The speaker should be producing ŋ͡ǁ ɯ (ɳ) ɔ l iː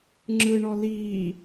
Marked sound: correct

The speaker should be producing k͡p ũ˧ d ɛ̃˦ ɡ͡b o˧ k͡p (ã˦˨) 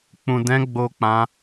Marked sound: incorrect: ã˦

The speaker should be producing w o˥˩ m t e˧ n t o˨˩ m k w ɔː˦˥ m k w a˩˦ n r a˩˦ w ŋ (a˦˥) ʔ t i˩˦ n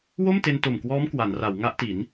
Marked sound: correct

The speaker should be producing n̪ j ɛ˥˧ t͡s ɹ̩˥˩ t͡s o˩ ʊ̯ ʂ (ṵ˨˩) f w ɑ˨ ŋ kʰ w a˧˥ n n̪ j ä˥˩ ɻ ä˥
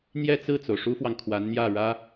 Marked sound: incorrect: u˥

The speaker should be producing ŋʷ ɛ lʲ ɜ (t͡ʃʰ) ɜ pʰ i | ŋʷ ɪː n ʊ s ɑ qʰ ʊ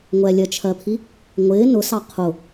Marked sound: correct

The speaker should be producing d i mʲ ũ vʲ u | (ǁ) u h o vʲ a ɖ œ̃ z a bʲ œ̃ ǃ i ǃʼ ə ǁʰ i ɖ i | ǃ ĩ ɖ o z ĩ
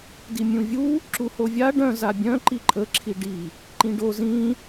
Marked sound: correct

